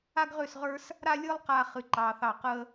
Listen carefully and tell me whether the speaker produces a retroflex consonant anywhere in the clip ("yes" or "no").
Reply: no